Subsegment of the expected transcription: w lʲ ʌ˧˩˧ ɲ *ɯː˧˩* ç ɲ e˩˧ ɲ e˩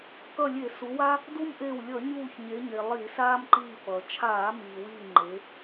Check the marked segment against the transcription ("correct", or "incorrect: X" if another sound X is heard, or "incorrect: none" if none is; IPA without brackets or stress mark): incorrect: uː˧˩